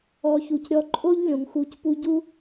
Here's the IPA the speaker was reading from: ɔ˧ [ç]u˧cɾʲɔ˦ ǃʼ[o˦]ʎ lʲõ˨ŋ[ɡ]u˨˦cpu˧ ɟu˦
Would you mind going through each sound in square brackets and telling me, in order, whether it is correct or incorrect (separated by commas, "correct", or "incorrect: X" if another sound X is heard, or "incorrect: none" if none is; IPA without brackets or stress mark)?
correct, correct, incorrect: x